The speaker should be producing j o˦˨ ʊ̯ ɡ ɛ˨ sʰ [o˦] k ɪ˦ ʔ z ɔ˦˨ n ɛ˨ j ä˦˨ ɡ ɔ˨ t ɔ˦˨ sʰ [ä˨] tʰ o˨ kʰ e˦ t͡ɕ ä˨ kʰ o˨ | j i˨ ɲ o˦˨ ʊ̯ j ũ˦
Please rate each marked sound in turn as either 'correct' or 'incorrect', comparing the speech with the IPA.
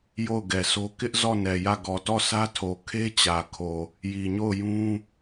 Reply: correct, incorrect

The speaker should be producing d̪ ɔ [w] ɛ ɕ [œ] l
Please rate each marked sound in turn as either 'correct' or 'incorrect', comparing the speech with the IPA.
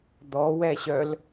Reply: correct, correct

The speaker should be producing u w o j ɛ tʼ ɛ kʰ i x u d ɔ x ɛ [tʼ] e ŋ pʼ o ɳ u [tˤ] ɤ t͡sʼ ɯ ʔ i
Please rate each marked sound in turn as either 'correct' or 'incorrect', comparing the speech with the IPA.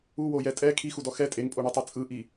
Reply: correct, correct

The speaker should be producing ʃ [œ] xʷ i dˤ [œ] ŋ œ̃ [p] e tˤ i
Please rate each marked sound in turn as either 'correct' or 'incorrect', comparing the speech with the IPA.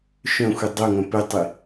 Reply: incorrect, correct, correct

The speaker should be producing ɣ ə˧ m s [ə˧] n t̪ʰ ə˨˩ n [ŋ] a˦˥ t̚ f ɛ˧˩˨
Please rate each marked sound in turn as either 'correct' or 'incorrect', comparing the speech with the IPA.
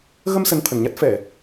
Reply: incorrect, incorrect

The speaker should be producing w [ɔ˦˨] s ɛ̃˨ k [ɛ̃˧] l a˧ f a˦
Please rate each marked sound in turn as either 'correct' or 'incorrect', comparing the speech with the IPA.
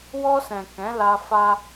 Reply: incorrect, incorrect

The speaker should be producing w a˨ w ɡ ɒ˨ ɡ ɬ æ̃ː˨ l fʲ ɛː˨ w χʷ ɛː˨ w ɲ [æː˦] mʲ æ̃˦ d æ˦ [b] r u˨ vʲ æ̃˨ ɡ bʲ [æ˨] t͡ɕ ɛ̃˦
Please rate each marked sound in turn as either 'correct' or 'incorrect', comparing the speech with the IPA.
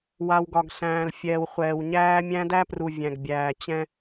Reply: correct, incorrect, incorrect

